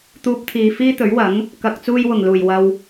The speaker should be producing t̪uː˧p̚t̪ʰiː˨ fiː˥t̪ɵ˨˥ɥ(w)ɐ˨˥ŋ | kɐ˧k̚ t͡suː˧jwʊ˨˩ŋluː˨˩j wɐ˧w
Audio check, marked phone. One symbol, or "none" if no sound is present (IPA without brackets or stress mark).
w